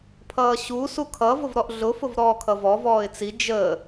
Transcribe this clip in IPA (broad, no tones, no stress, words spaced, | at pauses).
pʰʌːɕu sukʰʌ vʊvɾɔʔɮʊ fʊvɾɔːkʰʌvɔ vɔːɪ̯t͡si d͡ʒəː